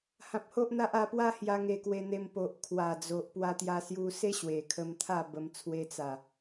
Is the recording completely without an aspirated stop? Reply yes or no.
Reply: no